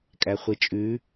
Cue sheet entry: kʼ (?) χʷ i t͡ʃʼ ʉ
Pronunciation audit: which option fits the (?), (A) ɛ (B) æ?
B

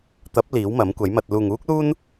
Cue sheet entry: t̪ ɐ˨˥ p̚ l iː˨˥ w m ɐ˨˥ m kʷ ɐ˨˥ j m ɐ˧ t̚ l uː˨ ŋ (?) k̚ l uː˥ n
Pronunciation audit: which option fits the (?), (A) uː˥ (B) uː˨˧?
A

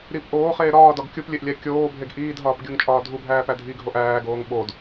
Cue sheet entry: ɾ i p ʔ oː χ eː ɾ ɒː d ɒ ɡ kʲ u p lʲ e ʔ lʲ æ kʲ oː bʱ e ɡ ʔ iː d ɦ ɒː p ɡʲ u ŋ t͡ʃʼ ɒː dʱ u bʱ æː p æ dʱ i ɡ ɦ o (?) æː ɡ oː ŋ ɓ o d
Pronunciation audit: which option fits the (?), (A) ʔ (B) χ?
A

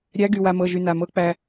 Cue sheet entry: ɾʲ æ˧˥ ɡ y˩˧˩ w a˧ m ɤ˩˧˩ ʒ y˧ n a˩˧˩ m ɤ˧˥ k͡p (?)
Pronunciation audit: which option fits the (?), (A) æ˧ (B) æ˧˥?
A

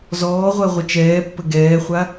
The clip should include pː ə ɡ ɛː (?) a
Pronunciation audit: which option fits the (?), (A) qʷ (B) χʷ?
B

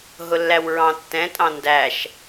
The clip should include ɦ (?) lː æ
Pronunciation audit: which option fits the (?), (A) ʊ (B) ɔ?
A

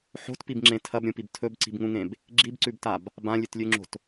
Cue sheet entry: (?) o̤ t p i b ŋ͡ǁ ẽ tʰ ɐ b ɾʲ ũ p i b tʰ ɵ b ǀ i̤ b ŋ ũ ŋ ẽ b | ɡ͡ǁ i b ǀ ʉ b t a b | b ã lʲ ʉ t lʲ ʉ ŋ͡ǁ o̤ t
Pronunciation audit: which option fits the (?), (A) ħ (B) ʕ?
A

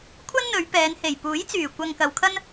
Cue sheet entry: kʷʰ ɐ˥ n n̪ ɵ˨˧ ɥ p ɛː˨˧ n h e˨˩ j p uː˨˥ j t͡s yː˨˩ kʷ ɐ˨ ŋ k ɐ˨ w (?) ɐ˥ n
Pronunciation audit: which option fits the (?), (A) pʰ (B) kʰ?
B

